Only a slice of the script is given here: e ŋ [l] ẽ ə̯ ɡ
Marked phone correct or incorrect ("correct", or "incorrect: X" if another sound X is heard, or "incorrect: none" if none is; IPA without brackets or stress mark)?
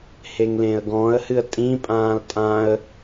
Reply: correct